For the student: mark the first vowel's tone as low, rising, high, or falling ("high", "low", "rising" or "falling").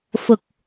low